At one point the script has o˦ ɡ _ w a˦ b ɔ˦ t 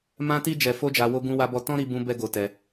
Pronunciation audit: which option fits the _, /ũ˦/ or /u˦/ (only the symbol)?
ũ˦